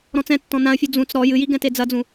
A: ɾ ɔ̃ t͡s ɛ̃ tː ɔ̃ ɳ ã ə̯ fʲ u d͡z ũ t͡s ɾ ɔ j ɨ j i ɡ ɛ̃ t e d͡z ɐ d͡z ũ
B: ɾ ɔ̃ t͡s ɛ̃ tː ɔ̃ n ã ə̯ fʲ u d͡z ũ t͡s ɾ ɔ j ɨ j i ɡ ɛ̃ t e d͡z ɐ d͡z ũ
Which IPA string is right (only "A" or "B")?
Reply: B